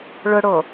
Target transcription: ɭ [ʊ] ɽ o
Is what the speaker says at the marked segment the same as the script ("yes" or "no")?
yes